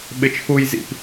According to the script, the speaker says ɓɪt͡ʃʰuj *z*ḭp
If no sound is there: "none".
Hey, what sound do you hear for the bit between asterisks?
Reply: z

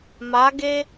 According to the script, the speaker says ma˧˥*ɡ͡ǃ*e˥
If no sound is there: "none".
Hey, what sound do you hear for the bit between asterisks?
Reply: ɡ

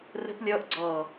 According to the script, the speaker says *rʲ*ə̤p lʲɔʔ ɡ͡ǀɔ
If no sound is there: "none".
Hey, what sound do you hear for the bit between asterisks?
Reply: r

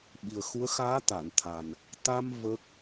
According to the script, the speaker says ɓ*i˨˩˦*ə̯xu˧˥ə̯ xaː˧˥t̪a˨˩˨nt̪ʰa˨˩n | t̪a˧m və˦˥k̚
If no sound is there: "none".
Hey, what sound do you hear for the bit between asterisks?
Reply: i˨˩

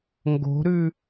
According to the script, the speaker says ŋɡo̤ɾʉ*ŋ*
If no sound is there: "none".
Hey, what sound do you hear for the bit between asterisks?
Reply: none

